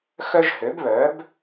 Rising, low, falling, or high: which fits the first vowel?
high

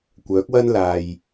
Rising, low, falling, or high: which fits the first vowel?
rising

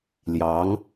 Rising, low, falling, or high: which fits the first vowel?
rising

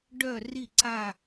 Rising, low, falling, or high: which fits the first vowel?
falling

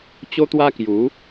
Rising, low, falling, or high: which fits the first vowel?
high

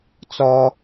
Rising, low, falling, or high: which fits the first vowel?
high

